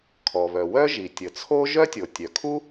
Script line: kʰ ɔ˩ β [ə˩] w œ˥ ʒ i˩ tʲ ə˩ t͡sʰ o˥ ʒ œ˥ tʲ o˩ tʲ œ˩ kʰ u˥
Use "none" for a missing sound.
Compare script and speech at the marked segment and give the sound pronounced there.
œ˩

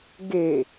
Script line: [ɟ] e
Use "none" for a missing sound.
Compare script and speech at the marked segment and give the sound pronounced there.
ɡ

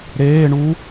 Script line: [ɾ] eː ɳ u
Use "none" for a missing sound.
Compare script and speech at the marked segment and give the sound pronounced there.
ɾ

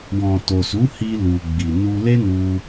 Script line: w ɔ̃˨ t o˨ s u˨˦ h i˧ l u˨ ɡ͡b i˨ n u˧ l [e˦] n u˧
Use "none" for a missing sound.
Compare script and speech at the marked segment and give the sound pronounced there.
e˦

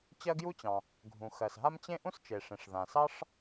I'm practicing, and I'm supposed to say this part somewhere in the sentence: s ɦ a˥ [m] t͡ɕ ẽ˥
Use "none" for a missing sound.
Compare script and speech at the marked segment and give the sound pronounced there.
m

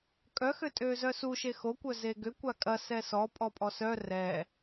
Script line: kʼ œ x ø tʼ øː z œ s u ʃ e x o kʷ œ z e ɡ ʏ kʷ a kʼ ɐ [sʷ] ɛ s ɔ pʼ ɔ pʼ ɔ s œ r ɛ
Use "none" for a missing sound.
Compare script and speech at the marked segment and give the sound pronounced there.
s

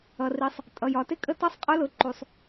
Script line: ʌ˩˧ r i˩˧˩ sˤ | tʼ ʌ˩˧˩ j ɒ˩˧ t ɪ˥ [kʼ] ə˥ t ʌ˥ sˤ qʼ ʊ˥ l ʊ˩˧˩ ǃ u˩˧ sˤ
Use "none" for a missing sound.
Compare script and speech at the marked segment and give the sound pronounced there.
kʼ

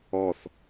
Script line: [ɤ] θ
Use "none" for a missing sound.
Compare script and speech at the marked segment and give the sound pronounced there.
ɔ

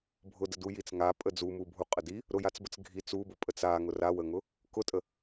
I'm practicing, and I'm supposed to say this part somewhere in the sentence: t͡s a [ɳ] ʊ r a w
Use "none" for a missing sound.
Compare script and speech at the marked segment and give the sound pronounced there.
ŋ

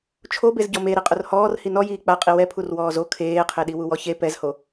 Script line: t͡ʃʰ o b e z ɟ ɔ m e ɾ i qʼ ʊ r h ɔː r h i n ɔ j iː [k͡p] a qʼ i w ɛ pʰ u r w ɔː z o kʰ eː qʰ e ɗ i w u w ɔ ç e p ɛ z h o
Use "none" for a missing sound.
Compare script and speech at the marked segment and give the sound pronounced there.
k͡p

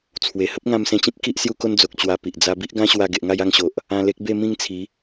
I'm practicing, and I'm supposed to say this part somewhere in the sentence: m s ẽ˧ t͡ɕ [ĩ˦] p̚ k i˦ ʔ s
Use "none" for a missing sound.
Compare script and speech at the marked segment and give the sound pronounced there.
ĩ˦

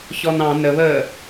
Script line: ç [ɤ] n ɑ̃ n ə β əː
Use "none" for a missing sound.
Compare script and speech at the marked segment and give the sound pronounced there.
ɔ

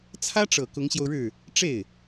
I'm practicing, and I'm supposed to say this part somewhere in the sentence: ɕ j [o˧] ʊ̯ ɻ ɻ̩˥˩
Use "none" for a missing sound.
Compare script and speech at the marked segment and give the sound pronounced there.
o˧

